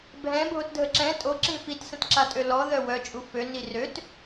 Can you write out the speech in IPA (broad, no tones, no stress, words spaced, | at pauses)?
bʱɛ̃ bʱotdʱəǁɛ̃ tʼo ǁĩfit sə̃tǁatʼølɔ ðœwœ t͡ʃʼufø nirøt